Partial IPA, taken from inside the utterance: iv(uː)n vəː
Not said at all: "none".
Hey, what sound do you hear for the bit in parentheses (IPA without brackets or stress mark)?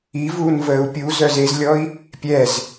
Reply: uː